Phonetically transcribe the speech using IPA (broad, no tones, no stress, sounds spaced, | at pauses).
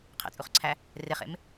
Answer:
qʰ ɛ̰ t͡sʼ u χ ǀʰ æ | r e χ ḛ m